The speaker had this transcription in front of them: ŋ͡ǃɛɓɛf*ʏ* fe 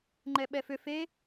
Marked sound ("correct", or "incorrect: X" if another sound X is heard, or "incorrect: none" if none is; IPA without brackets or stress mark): correct